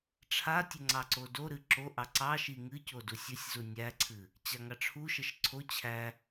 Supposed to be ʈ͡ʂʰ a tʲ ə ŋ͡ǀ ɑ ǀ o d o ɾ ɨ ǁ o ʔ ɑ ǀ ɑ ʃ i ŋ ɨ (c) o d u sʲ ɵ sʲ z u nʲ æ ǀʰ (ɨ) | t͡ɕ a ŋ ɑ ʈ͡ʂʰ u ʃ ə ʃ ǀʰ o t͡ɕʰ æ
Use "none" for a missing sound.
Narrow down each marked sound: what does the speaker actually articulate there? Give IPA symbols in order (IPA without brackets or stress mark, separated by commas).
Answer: c, ɨ